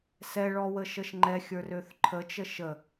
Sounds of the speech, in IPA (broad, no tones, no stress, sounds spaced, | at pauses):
s ɛ ɭ ɔ w ə ʃ ə ʃ ŋ͡ǃ ɛ xʲ ə˞ r ø θ ǃʰ ə t͡ʃ ə ʃ ə